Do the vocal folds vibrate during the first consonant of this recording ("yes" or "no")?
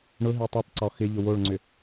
yes